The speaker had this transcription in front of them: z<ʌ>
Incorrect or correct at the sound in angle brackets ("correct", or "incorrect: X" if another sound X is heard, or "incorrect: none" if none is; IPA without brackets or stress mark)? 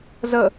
incorrect: ə